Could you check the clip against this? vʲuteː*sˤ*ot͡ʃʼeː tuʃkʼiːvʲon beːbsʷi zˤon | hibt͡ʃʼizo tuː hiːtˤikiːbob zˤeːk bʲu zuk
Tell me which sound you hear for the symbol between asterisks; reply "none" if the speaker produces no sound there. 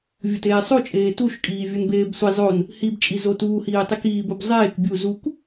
sˤ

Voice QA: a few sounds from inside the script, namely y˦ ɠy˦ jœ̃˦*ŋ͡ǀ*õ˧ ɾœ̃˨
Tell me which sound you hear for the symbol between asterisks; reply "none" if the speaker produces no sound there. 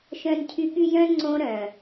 ŋ͡ǀ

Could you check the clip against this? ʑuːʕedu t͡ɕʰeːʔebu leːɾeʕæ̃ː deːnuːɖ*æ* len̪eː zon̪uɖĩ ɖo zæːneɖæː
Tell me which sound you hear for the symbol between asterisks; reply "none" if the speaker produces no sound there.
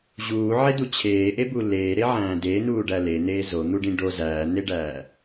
æ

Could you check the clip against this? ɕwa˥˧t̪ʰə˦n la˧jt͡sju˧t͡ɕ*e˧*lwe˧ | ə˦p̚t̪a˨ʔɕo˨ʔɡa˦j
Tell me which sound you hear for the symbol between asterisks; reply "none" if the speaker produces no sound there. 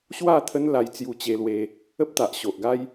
e˧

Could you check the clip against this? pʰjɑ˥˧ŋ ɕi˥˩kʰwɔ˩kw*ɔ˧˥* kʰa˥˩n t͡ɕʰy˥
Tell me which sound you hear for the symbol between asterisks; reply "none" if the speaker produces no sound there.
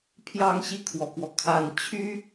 ɔ˩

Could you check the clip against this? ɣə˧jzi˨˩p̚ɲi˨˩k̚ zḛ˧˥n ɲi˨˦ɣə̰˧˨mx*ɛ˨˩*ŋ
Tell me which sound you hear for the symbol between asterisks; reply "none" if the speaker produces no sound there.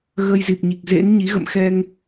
ɛ˧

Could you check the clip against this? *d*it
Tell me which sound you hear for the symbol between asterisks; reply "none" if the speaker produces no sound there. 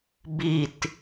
b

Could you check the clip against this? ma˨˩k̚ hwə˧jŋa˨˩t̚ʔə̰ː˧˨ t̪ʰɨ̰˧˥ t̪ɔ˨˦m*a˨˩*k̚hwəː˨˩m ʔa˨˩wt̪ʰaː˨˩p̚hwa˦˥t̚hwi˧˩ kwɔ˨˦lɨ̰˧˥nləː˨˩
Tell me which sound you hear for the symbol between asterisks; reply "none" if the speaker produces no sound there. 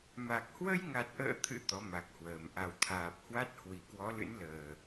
a˨˩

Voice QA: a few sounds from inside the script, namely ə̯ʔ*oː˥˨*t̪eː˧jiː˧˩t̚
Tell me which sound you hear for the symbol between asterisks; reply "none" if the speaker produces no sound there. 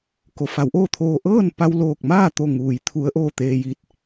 oː˥˨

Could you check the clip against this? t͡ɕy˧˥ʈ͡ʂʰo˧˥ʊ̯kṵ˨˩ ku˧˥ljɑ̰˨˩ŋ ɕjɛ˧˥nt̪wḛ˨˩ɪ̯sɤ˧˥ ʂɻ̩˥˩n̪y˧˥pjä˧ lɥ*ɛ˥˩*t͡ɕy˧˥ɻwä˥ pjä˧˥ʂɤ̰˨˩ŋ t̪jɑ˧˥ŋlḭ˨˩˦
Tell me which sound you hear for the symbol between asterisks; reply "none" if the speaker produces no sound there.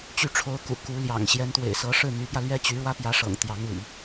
ɛ˥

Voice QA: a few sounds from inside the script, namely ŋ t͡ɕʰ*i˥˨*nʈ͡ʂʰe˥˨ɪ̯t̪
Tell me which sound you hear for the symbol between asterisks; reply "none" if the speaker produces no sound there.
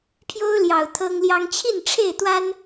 i˥˨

